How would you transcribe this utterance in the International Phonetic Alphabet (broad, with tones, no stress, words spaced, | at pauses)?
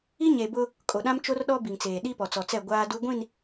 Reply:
i˦ɲe˨bʊ˦ | kʼo˨ɗã˦m t͡ʃo˦rɗɔ˦bi˨ŋt͡seː˨ ɗi˦pɔ˨t͡sɔ˨t͡sɛ˦˨ ɡʷaː˦du˦ ɡʷĩ˦˨n